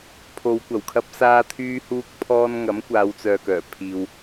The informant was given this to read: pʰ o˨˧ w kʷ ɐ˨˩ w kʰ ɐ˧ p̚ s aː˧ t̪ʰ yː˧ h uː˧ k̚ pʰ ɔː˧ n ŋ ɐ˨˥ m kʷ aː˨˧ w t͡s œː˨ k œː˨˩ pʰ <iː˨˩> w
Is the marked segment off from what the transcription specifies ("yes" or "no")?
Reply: yes